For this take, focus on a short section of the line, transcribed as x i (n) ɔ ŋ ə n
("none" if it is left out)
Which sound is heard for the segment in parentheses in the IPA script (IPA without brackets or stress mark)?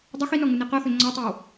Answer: n